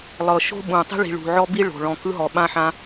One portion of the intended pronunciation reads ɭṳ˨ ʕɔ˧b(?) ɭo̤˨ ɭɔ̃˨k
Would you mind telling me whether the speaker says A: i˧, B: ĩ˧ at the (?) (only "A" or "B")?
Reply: A